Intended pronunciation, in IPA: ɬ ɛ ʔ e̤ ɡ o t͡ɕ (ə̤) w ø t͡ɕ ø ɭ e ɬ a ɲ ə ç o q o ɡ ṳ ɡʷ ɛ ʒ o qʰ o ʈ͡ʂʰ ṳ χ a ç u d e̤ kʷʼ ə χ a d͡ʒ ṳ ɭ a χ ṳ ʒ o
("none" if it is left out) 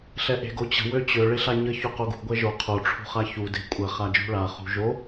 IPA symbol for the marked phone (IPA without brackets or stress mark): ə̤